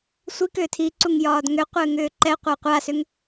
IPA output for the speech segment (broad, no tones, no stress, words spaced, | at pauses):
sʷikʏː tʰiǀuŋ jɒːdŋʏqʷɘː ŋʏːǃɛqʷa qʷasʏŋ